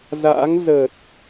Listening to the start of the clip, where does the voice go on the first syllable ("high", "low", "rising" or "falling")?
rising